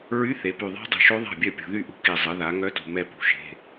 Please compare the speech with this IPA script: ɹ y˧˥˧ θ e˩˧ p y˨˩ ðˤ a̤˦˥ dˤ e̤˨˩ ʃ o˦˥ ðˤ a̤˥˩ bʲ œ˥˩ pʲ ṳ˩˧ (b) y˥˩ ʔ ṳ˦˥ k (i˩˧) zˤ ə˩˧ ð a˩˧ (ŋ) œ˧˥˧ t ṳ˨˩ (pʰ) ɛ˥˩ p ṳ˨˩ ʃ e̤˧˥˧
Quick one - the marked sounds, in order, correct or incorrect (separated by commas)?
incorrect, incorrect, correct, incorrect